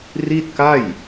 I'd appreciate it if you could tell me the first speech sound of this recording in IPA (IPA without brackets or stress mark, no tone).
r